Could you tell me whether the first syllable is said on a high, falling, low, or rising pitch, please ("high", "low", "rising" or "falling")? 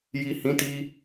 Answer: low